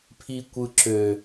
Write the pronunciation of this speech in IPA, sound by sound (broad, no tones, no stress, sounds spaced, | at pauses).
pʰ i kʷ ɯ ǁ ø